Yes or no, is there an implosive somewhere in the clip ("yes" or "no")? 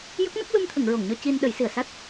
yes